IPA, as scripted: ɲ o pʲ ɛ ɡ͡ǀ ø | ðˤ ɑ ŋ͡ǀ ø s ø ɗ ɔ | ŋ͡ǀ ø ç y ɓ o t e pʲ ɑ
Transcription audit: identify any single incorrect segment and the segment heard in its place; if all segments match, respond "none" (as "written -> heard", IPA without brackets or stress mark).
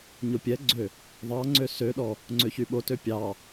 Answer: e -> ø